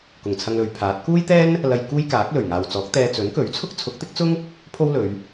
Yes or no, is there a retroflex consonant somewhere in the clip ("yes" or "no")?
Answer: no